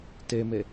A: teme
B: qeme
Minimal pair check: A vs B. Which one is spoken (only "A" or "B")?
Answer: A